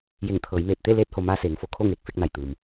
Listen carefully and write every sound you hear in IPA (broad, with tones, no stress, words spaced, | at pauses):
je˧˩ŋt̪ʰɤː˩˧jmeː˧˩t̚ t̪e˥˨ leː˧t̚ho˩ maː˧seː˩˧ŋfo˩ kʰo˥˨ŋeː˧˩k̚fe˥˨k̚na˧˩j t̪ɯː˩m